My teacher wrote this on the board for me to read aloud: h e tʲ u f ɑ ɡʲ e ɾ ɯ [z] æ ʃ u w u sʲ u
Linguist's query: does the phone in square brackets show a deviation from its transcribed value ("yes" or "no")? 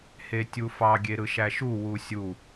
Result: yes